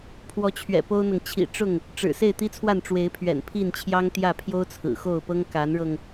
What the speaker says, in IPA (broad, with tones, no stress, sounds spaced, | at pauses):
pʰ w ɔ˨˦ t͡ɕʰ ɥ ɛ̰˨˩ p o˦ ʊ̯ n̪ ɤ˨ ŋ t͡ɕʰ ḭ˨˩ ʈ͡ʂ ʊ˥˨ ŋ | ʈ͡ʂ ɻ̩˨˩ s e˥˨ ɪ̯ t̪ i˦ t͡sʰ w a˥˨ n ʈ͡ʂ w e˨˦ ɪ̯ pʰ ɥ ɛ̰˨˩ n pʰ i˥˨ n t͡ɕʰ j ɑ˦ ŋ t̪ j ä˥˨ pʰ j o˦ ʊ̯ t͡sʰ ɹ̩˨˩ x o˥˨ ʊ̯ p ɤ˦ ŋ k a˨˦ n ɻ ɤ˧ ŋ